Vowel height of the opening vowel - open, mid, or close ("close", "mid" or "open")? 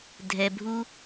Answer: mid